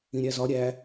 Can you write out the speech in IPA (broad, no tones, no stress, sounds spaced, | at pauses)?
ĩ ɾʲ æ z ɒ ɾʲ æ